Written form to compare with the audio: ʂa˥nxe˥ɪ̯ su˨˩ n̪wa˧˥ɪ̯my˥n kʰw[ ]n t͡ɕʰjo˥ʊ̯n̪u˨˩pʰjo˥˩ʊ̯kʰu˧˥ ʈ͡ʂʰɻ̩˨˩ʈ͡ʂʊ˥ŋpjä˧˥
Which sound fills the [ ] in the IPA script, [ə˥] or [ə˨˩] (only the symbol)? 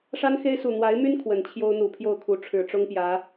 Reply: ə˨˩